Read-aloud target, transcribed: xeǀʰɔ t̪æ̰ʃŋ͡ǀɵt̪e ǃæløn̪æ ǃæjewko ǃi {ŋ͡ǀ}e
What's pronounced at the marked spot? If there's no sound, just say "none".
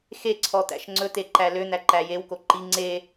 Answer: ŋ͡ǀ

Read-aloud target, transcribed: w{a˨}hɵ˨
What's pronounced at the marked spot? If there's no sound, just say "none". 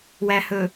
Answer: æ˨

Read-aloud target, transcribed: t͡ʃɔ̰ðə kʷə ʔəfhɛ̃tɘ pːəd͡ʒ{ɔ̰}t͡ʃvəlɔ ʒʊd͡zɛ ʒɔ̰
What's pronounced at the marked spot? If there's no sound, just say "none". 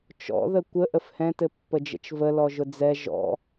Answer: ə̰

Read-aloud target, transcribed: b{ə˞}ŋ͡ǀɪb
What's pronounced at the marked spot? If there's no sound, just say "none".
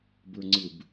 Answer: ə˞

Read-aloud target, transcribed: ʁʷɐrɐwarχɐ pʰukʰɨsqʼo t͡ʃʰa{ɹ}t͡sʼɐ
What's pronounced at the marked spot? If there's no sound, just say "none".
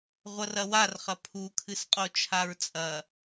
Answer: ɹ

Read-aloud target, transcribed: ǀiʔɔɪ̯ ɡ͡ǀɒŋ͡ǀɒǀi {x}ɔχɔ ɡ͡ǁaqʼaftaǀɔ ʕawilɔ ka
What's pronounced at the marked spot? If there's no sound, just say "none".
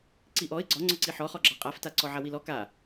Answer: ħ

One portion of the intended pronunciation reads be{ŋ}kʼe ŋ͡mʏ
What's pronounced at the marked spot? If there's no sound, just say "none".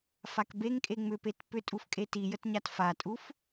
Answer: ŋ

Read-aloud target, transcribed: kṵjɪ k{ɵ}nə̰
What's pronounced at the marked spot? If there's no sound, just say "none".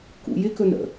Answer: ɵ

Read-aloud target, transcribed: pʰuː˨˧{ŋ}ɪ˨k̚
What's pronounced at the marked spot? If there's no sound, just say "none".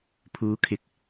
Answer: kʰ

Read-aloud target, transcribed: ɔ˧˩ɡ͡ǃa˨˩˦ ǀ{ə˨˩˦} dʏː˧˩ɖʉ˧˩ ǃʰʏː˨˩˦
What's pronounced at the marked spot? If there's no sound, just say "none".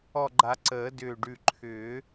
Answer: əː˨˩˦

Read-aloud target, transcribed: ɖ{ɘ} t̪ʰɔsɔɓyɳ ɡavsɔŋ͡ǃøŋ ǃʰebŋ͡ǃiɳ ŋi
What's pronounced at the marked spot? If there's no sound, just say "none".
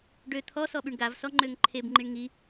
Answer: ø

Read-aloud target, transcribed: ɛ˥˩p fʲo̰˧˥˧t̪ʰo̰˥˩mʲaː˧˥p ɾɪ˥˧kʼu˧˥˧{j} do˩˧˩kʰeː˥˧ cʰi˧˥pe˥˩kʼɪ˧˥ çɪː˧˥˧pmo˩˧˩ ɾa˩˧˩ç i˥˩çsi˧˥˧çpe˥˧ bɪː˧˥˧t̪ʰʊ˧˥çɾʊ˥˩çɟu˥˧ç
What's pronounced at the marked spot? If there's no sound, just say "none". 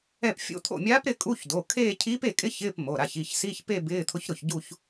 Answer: ç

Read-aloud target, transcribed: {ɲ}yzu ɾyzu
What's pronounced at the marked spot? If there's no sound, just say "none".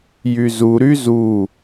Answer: j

